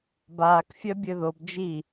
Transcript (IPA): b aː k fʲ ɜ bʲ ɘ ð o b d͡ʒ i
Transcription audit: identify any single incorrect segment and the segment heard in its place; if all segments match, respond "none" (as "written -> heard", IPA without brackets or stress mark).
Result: none